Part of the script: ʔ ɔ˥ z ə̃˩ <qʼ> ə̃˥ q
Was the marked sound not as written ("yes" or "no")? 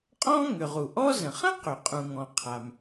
yes